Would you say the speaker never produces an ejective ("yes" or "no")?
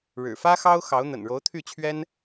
yes